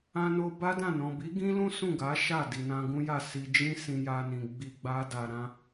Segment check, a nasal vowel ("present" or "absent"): present